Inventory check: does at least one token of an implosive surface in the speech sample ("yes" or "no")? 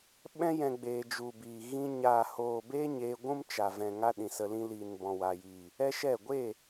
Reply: yes